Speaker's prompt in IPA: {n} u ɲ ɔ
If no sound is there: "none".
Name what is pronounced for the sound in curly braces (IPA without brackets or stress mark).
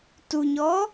t